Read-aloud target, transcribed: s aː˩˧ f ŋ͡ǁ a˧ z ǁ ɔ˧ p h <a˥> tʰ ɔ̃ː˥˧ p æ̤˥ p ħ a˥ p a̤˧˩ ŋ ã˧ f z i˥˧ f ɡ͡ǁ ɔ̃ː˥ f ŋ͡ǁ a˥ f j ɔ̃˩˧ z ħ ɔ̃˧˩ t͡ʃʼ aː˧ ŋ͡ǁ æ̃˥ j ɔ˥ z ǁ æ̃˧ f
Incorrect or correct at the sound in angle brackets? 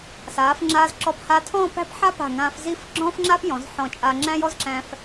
incorrect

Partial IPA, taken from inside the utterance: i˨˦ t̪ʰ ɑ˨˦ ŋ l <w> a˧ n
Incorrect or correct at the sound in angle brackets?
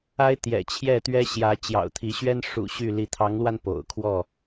correct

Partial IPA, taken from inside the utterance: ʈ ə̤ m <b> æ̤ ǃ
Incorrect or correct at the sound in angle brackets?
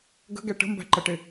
correct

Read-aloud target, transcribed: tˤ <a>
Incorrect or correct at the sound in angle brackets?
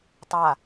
correct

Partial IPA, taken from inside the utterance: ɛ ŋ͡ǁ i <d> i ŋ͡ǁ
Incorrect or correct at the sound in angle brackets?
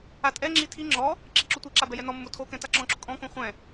incorrect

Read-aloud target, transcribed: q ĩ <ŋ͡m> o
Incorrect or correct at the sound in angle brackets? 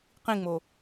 correct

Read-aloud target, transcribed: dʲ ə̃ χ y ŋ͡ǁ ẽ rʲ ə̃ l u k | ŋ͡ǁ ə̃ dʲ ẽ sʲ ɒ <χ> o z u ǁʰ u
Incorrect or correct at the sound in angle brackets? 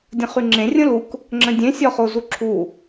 correct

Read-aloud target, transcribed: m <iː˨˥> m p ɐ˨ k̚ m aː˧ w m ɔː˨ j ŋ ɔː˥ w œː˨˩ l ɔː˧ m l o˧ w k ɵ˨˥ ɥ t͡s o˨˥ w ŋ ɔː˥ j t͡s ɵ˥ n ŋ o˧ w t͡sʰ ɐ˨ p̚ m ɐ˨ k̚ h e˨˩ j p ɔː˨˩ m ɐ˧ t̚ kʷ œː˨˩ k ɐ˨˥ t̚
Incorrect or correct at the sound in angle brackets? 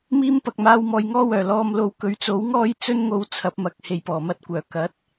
incorrect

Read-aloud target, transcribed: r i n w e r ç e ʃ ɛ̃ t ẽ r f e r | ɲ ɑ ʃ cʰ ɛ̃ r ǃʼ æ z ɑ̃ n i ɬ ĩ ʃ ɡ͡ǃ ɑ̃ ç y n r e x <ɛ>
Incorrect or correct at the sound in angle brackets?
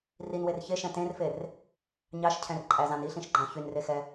correct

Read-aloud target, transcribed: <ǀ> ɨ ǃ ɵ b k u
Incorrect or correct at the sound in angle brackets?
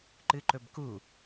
incorrect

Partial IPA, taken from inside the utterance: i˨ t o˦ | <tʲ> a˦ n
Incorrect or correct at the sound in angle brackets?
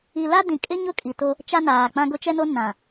incorrect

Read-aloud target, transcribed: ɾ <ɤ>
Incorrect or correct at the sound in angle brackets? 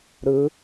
incorrect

